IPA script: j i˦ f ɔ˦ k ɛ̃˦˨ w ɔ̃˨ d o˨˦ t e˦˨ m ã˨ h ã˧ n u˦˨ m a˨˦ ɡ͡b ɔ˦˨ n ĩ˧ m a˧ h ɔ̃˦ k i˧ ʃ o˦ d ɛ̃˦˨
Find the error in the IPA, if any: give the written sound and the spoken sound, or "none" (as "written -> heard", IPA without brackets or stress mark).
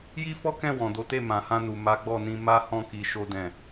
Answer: u˦˨ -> u˨